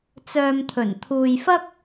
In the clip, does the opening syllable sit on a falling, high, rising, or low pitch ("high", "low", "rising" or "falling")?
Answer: low